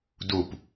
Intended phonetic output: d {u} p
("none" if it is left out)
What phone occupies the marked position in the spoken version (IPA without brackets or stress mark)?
u